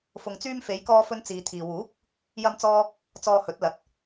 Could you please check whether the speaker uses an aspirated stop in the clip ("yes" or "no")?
yes